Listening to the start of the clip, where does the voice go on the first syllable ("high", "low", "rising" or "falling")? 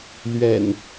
low